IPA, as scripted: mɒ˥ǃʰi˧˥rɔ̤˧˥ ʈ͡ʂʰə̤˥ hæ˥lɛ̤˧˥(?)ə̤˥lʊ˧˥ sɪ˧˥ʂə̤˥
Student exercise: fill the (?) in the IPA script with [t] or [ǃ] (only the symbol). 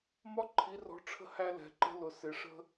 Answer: ǃ